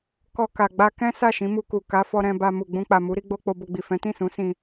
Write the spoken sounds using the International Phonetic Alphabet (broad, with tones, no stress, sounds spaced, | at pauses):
k ɔ˧ k a˨ ɡ͡b a˧ k ɛ̃˦ s a˦˨ ʃ ĩ˨˦ m u˧ k u˨ k a˨˦ f ɔ˧ ɾ ɛ̃˧ b a˧ m u˨ ɡ͡b ũ˧ k͡p a˨ m u˨˦ ɾ i˦ ɡ͡b o˦ k͡p o˧ b o˧ ɡ͡b i˨ f ɛ̃˨˦ t ĩ˦˨ s ũ˨˦ s ĩ˧